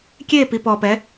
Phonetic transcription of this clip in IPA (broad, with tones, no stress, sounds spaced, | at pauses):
kʲ e˥˧ p i˧ p ɔ˧ p ɛ˧˥